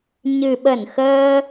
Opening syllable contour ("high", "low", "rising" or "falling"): low